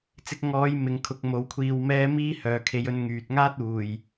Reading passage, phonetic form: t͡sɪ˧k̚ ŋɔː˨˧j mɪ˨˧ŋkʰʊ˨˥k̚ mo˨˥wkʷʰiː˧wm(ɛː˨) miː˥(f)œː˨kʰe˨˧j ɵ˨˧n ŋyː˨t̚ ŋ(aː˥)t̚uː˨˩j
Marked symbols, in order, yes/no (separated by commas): no, no, yes